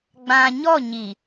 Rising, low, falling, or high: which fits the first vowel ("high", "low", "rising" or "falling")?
low